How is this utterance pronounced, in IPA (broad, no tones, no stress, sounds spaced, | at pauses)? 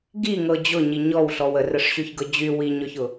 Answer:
ɡ i ŋ ɤ d͡ʑ ʊ ɲ i ɲ ɔ w ɬ ɔ w ə r ə ʂ ɕ y ç ɡ ɤ d͡ʑ y w i ɲ ɔ ç ʊ